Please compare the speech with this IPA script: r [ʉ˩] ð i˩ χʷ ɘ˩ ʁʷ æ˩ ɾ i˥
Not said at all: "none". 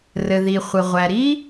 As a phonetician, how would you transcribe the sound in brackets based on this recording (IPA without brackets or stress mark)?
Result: ɘ˩